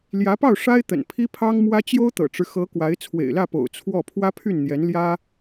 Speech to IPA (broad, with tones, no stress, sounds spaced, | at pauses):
l j ä˧˥ p ɑ˥˩ ʊ̯ ʂ a˥ ɪ̯ t̪ ə̰˨˩ n pʰ i˥ pʰ ɑ˥ ŋ m w ä˥ t͡ɕ j o˥ ʊ̯ t̪ ɤ̰˨˩ ʈ͡ʂ ɻ̩˦ x ɤ˧˥ k w a˧˥ ɪ̯ t͡sʰ w ḛ˨˩ ɪ̯ l ä˥˩ p o̰˨˩ ʊ̯ t͡sʰ w ɔ˥˩ pʰ w ä˥ pʰ y˥˩ n n̪ j ɛ˧˥ n l j ä˥